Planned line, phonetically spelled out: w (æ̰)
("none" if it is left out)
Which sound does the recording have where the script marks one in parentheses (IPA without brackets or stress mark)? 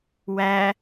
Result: æ